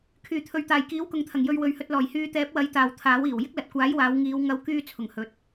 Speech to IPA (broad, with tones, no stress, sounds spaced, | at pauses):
kʰ yː˨˩ t̪ʰ ɵ˨ ɥ t̪ aː˨˩ j k iː˨˥ w k ʊ˨ ŋ t̪ʰ ɐ˨˩ ŋ j ɵ˧ ɥ w ɵ˨ ɥ h ɵ˧ t̚ l ɔː˨˩ j h yː˧ t̪ ɛː˨˥ p̚ w ɐ˨˥ j t̪ aː˨ w t̪ʰ aː˨˥ w iː˨˩ w j ɪ˥ k̚ l ɐ˨ t̚ kʷ aː˨˥ j w aː˨˧ w ŋ iː˨˧ w ŋ ɐ˧ w k yː˥ t͡sʰ ʊ˨˩ ŋ h ɵ˨ t̚